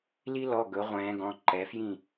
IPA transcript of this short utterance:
l i˦ l ɔ˩˧˩ ɡ ɵ˨˦ ʁʷ ɛ̃ː˨˦ ɡ ɔ̃˩˧˩ ǃ ɛ˨˦ f j ĩ˦˨

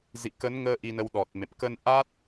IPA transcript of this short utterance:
z ḭ˧˨ k ə˨˦ n ŋ əː˧ ʔ i˧ n ə˧ w ɗ ɔ˨˩ t̚ m ḛ˧˨ m k ə˧ n ʔ a˦˥ t̚

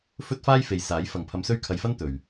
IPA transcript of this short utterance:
f ɵ˥ t̚ f aː˥ j f e˨ j s aː˨˥ j f ɐ˨ ŋ pʰ ɐ˧ m s ɵ˥ ɥ kʰ ɐ˧ j f ɐ˥ n t̪ ɵ˨ ɥ

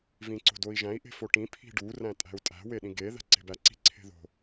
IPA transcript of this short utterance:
v ĩ ǀ o̤ d o i̯ ʒ æ̃ i̯ ʔ e̤ f o ʈ ĩ pʰ i̤ ɖ u r æ̃ tʼ æ̤ u̯ tʼ æ̤ w e ɗ ĩ ɡ e ð æ̤ ǀ e̤ b æ ǀ i̤ ǀʰ e̤ ð o̤

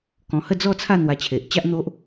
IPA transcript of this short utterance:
k ɔ̃˧ h ə˥˧ d͡z ɔ˥˧ t͡sʰ a˥˧ n̪ w a˧ t͡ɕʰ e˨ ʔ t͡ɕ a˦ ʔ n̪ o˦ ʔ

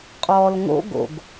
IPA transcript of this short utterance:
qʼ ɔː l ŋ o̰ ɡ o̰ ɡ

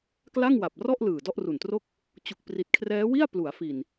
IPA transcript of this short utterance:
k l a˥˩ ŋ w a˨˩ p̚ r ɔ˥˩ ʔ l ɯː˨˩ d ɔ˥˩ ʔ r u˨˩ n t r o˥˩ k̚ | t͡ɕ u˨˩ k̚ p r i˨˩ t̚ kʰ r ɛː˦˥ w i˥˩ a̯ p l u˩˦ a̯ f i˨˩ n

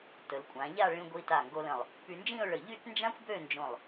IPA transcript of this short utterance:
t ə˩˧ l kʷʼ ã˩˧ ʎ a˥˧ ɭ ĩ˧ ɡʷ i˧ t a˧˩ ŋ ɡ o˧ l ə̃˧˩ lˠ | p y˧ n d͡ʒ ĩ˥˧ ʊ̯ ɭ ə˧˩ ʎ y˥˧ t n d͡ʒ ã˥ xʷ b ø˥˧ n d͡ʒ õ˧˩ lˠ

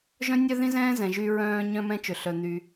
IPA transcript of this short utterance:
ʒ œ̃˥ nʲ œ˥ ð ĩ˥ z ɛ̃ː˥ z ɛ̃˩ ʒ y˧ ɹ œ̃ː˧ ɲ œ̃˥ m ɛ̃˥ t͡ʃ ø˩ ɬ œ˩ n̪ y˩

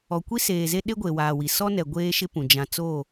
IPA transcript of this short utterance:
ɔ˨ kʷ i˦ s eː˨ z e˦ ɗ e˦ ɡʷ e˨ w aː˨ w i˨ s ɔ˦ n ɛ˨ ɡʷ eː˦ ʃ ɪ˦ p ũ˨ d͡ʒ ã˨ t͡s o˦˨

